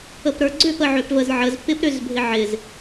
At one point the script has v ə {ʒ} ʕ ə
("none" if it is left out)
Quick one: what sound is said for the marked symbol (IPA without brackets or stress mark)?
z